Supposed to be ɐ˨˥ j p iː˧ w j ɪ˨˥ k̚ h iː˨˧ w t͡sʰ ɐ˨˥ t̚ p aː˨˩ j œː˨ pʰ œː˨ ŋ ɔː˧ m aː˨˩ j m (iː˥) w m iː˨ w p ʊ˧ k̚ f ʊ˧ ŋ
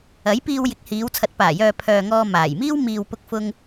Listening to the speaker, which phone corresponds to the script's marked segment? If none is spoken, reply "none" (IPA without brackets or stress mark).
iː˥